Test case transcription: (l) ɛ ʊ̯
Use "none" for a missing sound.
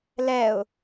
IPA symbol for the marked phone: l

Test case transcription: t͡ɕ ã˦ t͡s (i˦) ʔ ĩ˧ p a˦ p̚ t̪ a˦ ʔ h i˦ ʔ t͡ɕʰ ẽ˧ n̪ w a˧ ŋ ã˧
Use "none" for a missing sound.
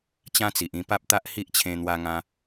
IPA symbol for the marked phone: i˨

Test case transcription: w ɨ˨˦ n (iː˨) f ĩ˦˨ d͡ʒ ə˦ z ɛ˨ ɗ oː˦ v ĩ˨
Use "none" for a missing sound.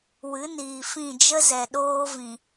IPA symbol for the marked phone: iː˨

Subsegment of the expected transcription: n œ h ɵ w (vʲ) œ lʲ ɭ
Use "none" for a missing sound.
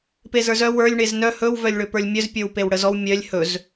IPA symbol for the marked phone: v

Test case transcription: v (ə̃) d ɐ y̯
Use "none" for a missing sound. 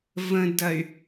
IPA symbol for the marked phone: ə̃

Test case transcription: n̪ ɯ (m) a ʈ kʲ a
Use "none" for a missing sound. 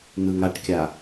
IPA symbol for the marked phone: ŋ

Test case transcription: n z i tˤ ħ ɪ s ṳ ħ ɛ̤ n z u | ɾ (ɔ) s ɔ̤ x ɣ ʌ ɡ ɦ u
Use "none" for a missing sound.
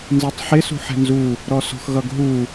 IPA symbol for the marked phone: ɔ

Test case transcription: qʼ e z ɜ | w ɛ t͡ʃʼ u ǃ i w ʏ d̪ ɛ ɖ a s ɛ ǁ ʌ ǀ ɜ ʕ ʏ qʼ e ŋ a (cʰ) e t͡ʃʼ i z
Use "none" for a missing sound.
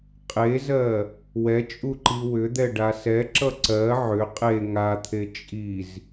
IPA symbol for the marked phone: t̪ʰ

